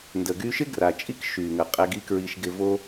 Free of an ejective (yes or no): no